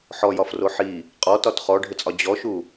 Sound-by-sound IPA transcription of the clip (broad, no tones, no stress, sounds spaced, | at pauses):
ħ ɔ j ɒ f r o ħ i | qʼ ɔ t ɒ t χ ɔ ɖʱ ɘ t͡sʼ ɒ d͡ʑ ɔ ʃ u